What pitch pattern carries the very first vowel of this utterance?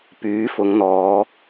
rising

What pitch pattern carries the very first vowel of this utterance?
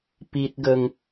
high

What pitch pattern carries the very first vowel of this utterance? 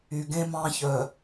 low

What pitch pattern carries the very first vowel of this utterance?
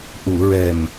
low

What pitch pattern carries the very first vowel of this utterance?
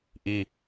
high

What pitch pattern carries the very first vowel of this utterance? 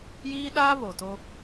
high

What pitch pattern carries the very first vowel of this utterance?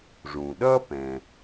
low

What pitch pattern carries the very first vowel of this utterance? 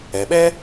low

